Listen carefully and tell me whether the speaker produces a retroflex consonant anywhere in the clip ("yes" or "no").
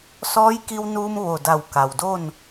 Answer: no